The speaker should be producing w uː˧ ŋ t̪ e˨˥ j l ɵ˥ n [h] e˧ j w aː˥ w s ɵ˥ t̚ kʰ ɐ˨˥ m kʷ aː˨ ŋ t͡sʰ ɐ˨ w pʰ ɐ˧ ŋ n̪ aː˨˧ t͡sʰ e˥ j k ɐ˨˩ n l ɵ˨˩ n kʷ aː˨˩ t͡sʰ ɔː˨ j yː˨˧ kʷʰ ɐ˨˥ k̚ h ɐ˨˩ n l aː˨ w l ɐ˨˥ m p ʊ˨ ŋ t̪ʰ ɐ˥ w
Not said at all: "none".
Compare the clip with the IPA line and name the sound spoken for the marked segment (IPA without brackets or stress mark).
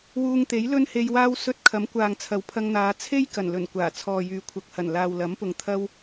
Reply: h